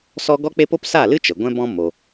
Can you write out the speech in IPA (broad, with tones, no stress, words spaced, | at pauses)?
sɔ˦ ɡɔ˦k͡pe˦po˦p sa˦˨lɨ˦ t͡ʃə˨ɡʷɛ̃˦bɔ̃˦ mo˧